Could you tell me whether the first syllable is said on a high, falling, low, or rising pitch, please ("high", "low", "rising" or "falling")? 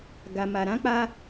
low